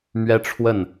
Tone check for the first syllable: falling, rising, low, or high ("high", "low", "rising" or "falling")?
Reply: high